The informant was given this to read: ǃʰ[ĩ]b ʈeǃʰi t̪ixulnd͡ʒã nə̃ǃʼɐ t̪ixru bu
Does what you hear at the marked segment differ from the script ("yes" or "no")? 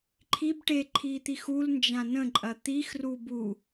yes